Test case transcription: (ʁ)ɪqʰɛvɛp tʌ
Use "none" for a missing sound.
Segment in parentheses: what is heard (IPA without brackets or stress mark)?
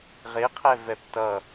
ʁ